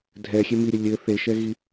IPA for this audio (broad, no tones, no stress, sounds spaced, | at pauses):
dʱ ɛ xʲ e m i ɾʲ ə lʲ ɘ θ e ʃ ɛ ɣ i